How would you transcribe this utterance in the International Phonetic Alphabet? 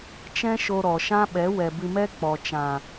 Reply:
t͡ʃ ɛ̃˦ ʃ o˧ ɾ ɔ˨ ʃ ã˦ ɓ ɛ˨˦ w ɛ˨ b ɨ˧ m ɛ˦ k͡p ɔ˨ t͡ʃ ã˨

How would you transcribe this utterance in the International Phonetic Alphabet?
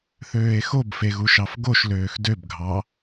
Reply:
θ øː e̯ x o b f e ɣ u ʃ ɑ f ɡ o ʃ l øː x d ø b ɡʱ ɑ

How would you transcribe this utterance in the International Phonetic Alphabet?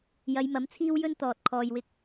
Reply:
j ɐ˨˧ j m ɐ˨˥ m t͡sʰ iː˥ w j ɵ˥ n t̪ ɔː˨ t̚ kʰ ɔː˧ j w ɪ˥ k̚

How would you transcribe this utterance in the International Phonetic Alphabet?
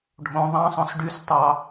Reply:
ɖʱ õ ðˤ ɑ̃ sˤ õ s ɖ y s tˤ ɑ

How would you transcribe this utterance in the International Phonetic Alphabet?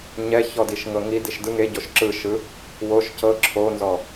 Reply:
ɲ ɛ ç ɔ d i ʃ ŋ ɤ ŋ i d i ʃ d ɯ ŋ e ɟ o ʃ ǁ ɯ ʃ ɯ | w o ʃ c ɤ ǁʰ o n z ɔ

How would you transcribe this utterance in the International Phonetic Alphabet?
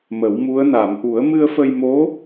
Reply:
m ə˨˩˦ w m u˧˥ ə̯ n a˨˩˨ m ʔ u˨˩˦ ə̯ m ɨ˧ ə̯ f ə˧ j m o˧˥

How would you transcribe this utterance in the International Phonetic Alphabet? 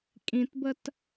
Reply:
kʼ ĩ t b ə t

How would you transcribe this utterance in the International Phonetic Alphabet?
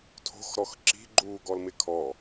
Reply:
tʰ o̤ x ɾ ɔ x ǁ i̤ ɡ͡ǃ uː ɡ ɔ l m ɪ kʰ ɔ

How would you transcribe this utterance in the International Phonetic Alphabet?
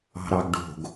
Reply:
ɑ̤ ɾ ɑ ɡ ɖ o̤ ɡ

